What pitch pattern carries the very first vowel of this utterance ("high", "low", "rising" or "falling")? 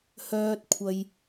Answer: low